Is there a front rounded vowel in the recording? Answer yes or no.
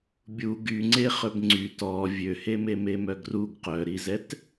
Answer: yes